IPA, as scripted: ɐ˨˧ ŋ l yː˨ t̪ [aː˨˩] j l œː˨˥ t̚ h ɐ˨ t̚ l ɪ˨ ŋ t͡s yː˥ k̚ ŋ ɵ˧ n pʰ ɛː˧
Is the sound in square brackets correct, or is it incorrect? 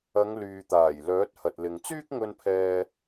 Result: correct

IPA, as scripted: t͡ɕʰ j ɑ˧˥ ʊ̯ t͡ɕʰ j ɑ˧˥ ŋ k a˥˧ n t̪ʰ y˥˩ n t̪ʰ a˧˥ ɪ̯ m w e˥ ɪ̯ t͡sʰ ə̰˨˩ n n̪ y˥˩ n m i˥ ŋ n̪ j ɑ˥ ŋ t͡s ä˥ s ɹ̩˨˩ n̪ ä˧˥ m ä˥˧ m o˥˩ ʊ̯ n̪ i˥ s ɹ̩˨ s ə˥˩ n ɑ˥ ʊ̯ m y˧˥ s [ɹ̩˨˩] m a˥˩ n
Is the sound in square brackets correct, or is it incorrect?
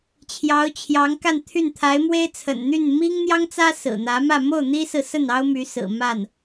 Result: correct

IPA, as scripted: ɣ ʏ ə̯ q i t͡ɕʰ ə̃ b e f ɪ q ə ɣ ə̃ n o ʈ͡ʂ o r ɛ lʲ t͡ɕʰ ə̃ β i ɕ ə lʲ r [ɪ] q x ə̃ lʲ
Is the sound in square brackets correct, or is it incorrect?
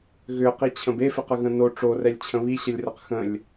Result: incorrect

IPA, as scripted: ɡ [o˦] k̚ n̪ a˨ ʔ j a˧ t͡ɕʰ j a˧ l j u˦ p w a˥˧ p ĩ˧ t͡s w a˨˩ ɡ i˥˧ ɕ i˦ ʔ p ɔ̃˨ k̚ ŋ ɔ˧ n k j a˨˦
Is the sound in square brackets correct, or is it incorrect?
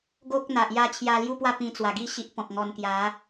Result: correct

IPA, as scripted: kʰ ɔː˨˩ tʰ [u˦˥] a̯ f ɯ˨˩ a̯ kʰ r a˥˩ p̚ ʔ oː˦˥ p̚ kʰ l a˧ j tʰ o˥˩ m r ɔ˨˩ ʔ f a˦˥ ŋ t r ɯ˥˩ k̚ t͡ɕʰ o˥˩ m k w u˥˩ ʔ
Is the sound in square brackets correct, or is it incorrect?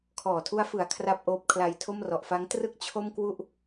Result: correct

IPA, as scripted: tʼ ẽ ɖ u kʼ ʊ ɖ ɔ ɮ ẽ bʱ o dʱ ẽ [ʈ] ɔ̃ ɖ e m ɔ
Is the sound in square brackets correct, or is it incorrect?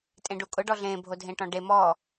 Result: correct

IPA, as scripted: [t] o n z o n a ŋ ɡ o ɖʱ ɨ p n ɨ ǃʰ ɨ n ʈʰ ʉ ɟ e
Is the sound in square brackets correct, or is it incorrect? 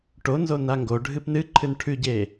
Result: incorrect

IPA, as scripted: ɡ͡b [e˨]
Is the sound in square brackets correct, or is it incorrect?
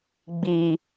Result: incorrect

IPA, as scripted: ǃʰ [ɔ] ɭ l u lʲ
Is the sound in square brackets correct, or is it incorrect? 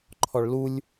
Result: correct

